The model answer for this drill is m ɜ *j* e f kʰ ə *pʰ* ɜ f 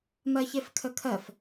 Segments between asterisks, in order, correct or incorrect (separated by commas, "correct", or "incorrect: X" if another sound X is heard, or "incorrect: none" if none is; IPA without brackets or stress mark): incorrect: ç, incorrect: kʰ